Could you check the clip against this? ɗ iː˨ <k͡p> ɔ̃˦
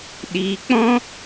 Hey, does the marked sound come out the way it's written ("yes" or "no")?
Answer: yes